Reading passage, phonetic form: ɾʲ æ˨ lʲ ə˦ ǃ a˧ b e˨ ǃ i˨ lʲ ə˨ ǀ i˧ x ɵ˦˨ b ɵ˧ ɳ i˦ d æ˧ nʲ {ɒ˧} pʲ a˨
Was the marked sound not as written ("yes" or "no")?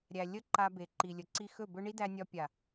no